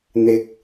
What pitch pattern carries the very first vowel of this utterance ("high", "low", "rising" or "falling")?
low